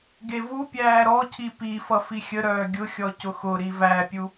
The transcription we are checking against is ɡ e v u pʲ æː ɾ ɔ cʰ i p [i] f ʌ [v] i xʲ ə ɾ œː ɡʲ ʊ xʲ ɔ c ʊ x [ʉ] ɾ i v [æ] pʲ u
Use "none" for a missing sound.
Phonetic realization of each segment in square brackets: i, f, ʊ, æ

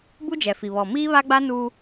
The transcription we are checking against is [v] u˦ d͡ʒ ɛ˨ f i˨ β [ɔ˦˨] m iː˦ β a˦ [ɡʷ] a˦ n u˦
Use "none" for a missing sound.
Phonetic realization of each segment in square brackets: b, ɔ˨, ɡ͡b

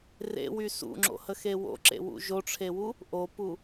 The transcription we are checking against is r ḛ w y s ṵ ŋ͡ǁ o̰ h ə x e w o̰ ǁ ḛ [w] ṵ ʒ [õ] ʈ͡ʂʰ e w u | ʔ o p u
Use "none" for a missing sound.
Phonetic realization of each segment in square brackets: w, o

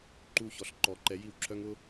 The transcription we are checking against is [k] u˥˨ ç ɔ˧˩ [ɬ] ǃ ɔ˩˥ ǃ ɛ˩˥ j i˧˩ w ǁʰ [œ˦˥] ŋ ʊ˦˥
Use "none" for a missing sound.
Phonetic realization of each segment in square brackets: ǃ, ɬ, œ˦˥

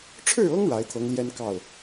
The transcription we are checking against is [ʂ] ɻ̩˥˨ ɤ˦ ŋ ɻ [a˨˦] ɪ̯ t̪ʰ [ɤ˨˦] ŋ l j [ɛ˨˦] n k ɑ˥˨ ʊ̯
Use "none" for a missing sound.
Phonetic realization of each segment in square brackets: ʈ͡ʂʰ, a˨˦, ɤ˨˦, ɛ˦

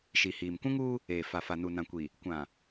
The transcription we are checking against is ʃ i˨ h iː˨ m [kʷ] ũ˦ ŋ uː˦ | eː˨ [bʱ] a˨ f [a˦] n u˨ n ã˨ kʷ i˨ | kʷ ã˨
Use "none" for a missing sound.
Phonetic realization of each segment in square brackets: kʷ, f, a˨

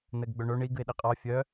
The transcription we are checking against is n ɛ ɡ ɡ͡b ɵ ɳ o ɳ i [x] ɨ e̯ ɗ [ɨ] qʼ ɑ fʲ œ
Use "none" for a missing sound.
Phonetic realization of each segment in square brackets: ɡ, i

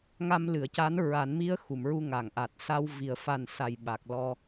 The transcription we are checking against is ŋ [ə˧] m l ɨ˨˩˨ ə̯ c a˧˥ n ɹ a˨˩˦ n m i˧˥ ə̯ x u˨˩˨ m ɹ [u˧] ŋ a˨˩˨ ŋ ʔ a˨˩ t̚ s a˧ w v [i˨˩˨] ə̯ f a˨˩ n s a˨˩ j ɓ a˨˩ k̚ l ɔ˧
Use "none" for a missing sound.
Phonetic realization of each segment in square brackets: a˧, u˧, i˨˩˨

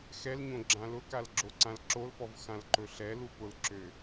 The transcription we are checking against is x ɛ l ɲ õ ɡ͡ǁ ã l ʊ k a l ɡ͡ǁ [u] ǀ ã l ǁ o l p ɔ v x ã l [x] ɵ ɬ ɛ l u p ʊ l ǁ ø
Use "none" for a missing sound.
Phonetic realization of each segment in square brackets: o, ǃ

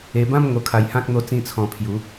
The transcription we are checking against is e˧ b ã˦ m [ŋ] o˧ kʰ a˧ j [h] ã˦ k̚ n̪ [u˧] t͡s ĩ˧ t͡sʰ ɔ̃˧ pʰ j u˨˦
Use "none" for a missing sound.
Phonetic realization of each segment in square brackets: ŋ, h, o˧

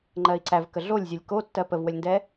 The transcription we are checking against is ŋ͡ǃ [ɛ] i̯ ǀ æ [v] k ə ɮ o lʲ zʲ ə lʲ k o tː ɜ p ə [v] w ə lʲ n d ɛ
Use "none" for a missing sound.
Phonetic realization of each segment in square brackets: ɜ, v, v

